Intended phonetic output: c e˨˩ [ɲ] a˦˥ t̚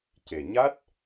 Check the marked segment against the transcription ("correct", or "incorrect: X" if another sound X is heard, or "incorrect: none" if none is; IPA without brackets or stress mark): correct